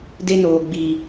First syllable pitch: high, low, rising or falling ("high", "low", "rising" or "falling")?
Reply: high